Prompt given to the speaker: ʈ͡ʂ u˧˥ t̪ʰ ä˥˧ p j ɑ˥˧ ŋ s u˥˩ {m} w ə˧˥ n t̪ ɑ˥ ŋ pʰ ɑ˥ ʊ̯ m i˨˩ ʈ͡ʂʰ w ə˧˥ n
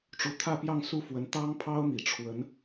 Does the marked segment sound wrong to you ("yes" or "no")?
yes